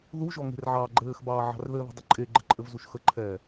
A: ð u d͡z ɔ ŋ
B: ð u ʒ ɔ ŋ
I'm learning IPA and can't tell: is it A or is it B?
B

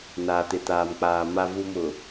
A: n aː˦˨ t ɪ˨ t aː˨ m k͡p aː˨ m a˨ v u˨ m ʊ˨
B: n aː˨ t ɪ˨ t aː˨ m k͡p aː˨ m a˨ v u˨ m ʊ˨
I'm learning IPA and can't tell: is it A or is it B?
B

